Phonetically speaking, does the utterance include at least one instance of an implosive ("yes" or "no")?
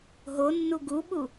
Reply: yes